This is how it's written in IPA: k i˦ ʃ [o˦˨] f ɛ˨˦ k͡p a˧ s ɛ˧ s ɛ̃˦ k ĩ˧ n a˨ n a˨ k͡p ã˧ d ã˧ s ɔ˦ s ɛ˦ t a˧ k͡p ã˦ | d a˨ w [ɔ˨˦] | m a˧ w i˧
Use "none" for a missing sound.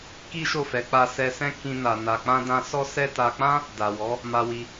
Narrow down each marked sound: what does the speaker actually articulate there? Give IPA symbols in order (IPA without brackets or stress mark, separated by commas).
o˦˨, ɔ˨˦